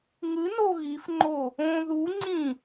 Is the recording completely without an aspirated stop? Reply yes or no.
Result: yes